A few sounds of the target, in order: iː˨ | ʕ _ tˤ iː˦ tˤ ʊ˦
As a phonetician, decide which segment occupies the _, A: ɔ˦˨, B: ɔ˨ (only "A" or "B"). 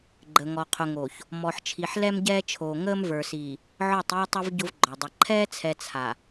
A